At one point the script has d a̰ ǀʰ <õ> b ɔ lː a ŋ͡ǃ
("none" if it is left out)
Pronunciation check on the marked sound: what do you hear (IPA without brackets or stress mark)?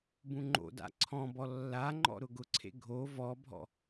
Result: ɔ̃